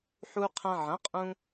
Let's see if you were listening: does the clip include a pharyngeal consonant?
yes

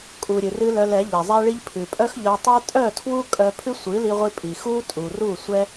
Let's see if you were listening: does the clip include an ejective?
yes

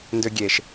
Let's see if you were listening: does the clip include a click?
no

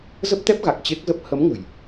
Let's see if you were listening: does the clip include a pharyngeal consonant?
no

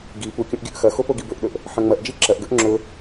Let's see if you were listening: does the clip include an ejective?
no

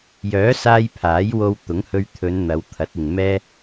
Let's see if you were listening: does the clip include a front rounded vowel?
yes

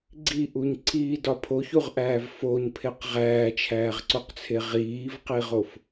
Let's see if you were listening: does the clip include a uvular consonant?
yes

